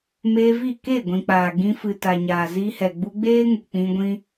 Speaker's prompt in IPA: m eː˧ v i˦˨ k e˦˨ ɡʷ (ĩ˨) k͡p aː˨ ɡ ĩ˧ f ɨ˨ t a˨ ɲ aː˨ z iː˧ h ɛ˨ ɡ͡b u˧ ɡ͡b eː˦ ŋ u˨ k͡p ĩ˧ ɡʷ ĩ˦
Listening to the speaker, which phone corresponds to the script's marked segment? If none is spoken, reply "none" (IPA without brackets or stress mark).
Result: ĩ˨